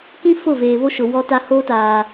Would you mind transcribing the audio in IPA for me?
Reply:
k ĩ˦ f ʊ˦˨ v eː˨ β o˦ ʃ ʊ˨ w ɔ˦ t a˦ h oː˦ t aː˨

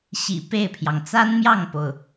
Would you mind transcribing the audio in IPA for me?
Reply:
ɕ ḭ˨˩ p e˥˩ ɪ̯ pʰ j ɑ˩ ŋ t͡s a˥ n m j ɑ˥˩ ŋ p o˩ ʊ̯

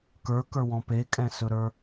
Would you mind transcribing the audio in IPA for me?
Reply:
k ə˞ k ə˞ w ɔ̃ p e kʼ ɛ̃ s ɵ ɾ ə˞

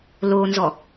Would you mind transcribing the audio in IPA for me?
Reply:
l o n z ɔ

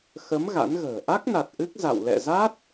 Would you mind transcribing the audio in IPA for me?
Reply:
x ə˨˦ m ɣ a̰˧˥ n ɣ ə̤ː˨˩ ʔ a˦˥ k̚ n a˨˩ t̚ ʔ ɨ˦˥ k̚ z a̰˧˨ w l ɛ̰˧˨ z a˦˥ t̚

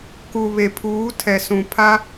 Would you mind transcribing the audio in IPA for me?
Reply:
k u˨ β e˨ pʰ uː˨˦ tʰ ɛ˨ s ũ˨ pʰ a˦

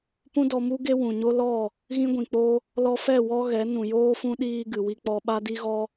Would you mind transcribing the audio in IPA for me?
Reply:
p ũ˦ d ɔ˧ m u˦ ɡ e˦ w ũ˨ ɲ o˦ l ɔ˦˨ | ɣ ĩ˦ ɡʷ ĩ˨ k͡p o˦ | l ɔ˧ f ɛ˦˨ w ɔ˦ ɣ ɛ˨˦ n ũ˨ j oː˦ f ũ˦ ɗ iː˧ ɡ ɨ˨ w i˧ k͡p ɔ˧ ɓ a˦ d i˦ ɣ ɔ˦

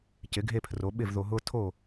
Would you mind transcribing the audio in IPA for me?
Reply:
c ɪ˩˥ ɡʱ e˥˩ pʰ r o˩˥ ɓ ɪ˥˩ v ð o˧ ɦ ʊː˥ tʰ o˥˩

